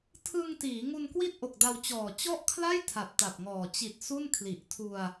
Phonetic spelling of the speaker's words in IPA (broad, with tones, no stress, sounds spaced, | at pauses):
tʰ ɯ˧ ŋ t iː˩˦ ŋ u˧ n k w i˥˩ t̚ ʔ o˨˩ k̚ d a˧ w t͡ɕ ɔː˨˩ t͡ɕ ɔ˥˩ ʔ kʰ l a˥˩ j tʰ a˨˩ p̚ t a˨˩ p̚ ŋ ɔː˨˩ t͡ɕ i˨˩ t̚ s u˥˩ n kʰ l i˨˩ ʔ tʰ u˧ a̯